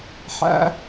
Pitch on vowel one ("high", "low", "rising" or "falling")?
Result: high